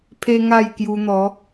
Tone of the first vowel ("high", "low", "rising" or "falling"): high